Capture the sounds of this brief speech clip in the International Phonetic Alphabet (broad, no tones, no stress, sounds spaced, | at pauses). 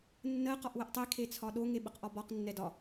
nː ɜ q ɒ ʔ w ə ʔ tˤ e kʰ e t͡sʰ ɒ ɗ o ŋ e ɓ ə q ʔ ɒ b ɒ q nː ɛ d ɒ